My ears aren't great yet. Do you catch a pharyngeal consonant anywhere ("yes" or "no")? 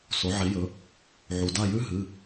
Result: yes